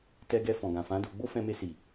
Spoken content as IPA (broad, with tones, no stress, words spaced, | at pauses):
tɛ˧ɡɛ˧ fɔ̃˨ɡã˨fã˨˦ do˧ ɡ͡bo˦fɛ̃˧me˧si˨